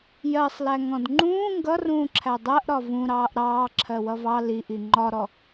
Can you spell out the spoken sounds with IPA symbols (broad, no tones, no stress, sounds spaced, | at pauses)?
j ɜ sˤ l æ ŋ ɔ̃ d ŋ͡ǃ ũː ŋ ɡ ʌ r ũː ǁʰ æ dˤ ɜ ʔ ɾ ɒ v ũ ɾ ɑː ʔ ɾ ɑː ǁʰ ɜ w ʌ v ɑ l i ʔ i ŋ͡ǃ ɒ ɾ ɔ